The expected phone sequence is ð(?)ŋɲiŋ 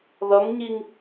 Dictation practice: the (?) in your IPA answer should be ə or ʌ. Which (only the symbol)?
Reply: ʌ